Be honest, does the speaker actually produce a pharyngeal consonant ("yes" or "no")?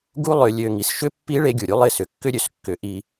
no